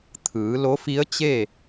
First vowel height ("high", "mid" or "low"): high